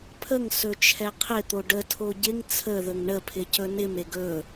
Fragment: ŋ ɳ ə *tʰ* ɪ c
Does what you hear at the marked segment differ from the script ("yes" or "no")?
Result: yes